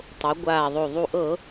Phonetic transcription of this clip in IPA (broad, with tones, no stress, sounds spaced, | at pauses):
tˤ o˩˧ ɡʷ aː˨˩ ðˤ o˨˩ ðˤ u˨˩ ʔ ɤ˧˩˧